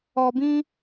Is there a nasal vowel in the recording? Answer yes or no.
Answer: yes